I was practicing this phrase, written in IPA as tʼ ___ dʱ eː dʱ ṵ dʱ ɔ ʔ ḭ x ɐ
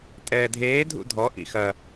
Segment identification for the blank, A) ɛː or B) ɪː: A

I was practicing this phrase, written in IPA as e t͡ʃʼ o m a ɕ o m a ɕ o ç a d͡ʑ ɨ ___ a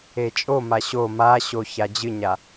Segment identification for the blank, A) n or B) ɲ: B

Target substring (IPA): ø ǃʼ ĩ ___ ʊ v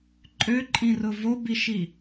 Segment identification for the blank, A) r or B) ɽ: A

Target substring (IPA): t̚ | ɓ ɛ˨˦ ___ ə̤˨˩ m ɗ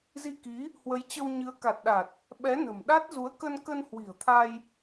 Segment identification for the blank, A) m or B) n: B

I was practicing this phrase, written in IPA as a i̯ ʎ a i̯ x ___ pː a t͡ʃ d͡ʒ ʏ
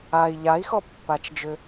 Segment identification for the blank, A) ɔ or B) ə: A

